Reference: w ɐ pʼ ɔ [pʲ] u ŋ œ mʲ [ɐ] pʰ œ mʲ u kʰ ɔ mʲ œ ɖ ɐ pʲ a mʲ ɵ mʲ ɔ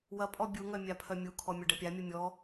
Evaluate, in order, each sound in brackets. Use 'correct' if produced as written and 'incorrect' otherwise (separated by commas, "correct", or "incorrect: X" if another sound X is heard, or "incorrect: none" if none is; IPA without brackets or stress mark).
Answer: incorrect: bʲ, incorrect: a